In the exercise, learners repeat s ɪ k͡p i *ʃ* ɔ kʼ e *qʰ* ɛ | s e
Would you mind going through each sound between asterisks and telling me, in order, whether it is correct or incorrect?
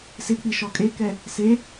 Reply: correct, incorrect

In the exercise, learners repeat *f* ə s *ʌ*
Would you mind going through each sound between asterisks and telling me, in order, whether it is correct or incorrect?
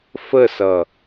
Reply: correct, correct

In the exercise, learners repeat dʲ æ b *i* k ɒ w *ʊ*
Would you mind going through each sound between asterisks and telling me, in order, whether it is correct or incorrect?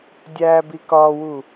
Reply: correct, incorrect

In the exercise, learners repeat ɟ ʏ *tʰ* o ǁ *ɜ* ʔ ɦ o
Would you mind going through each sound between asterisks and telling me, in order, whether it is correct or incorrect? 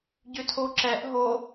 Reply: correct, incorrect

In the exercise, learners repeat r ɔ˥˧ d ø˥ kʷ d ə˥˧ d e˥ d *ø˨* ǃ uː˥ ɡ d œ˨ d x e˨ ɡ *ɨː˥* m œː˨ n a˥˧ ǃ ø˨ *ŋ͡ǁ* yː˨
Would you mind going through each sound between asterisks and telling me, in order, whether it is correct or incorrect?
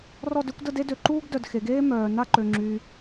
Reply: correct, incorrect, correct

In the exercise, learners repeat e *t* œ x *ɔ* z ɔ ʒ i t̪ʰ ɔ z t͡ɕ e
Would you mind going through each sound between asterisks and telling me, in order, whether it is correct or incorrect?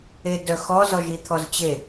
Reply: incorrect, correct

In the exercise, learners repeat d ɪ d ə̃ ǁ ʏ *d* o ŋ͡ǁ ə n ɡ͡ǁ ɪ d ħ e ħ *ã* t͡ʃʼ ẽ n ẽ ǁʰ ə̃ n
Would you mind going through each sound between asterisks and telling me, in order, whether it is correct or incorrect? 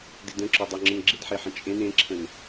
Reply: incorrect, incorrect

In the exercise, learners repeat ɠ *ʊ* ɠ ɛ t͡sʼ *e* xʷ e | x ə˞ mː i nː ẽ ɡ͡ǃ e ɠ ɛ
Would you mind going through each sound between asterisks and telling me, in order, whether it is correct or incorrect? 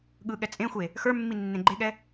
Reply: incorrect, incorrect

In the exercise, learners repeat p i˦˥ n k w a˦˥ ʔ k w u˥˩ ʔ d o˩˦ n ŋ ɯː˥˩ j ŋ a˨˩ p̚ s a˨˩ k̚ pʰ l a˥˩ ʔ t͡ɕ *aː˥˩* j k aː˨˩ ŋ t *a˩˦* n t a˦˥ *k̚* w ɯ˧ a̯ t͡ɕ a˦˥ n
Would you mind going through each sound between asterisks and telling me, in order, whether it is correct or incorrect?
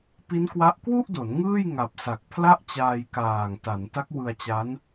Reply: incorrect, correct, correct

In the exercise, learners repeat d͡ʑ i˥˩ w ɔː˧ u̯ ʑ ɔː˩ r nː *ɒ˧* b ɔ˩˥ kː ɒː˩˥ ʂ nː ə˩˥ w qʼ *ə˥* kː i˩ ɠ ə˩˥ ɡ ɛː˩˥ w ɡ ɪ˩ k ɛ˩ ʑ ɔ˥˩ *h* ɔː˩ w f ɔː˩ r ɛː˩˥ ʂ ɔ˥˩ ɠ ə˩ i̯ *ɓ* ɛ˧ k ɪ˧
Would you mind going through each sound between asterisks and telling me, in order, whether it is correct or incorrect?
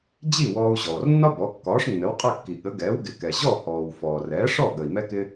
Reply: incorrect, incorrect, correct, incorrect

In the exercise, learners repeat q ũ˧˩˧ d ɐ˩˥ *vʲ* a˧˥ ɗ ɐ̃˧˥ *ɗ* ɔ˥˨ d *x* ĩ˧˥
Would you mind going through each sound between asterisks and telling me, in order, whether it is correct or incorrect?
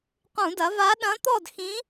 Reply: incorrect, incorrect, correct

